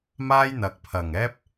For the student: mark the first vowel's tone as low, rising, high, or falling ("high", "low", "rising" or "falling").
high